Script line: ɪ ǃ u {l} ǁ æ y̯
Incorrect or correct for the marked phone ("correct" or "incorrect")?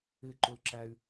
correct